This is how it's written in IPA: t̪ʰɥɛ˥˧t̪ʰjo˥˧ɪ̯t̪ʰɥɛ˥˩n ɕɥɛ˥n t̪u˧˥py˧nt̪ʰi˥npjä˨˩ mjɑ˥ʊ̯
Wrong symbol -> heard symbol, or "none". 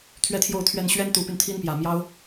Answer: ɪ̯ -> ʊ̯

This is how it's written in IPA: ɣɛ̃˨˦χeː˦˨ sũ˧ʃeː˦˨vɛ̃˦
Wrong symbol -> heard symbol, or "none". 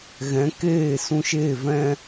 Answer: χ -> k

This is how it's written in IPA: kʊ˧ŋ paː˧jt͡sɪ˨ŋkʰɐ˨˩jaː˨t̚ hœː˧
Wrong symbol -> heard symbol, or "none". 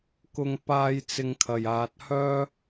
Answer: none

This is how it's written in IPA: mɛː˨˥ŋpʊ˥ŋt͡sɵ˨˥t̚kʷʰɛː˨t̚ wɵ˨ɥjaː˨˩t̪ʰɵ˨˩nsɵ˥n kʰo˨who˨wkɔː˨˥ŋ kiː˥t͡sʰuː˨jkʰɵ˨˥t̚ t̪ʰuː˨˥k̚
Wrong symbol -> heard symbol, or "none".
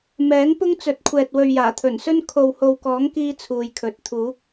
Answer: none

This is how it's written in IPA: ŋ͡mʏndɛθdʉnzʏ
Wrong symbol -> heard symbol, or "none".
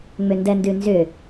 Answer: θ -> n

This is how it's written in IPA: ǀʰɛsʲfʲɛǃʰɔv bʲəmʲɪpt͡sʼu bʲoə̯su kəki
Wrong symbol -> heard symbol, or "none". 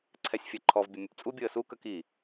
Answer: ɪ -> ə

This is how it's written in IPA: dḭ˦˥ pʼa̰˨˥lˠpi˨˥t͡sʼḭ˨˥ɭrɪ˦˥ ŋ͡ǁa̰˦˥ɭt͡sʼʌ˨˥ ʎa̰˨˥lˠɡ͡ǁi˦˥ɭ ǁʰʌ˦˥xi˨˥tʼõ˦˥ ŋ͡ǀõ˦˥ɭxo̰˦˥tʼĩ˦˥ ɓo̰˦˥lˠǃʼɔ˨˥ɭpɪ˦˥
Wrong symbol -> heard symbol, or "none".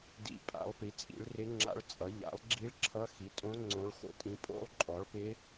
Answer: ɓ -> pʼ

